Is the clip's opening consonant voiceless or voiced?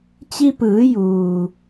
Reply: voiceless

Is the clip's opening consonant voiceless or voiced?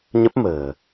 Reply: voiced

